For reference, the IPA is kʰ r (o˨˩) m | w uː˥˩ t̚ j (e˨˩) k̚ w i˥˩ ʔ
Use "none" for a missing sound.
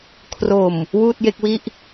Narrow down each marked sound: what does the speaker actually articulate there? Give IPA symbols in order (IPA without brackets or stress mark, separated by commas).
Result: o˨˩, e˥˩